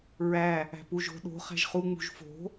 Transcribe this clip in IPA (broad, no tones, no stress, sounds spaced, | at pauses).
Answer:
ɹ æ | æ̤ p u ʒ o̤ ɗ o̤ χ æ̤ ʒ χ u ŋ͡m ṳ ʒ f o̤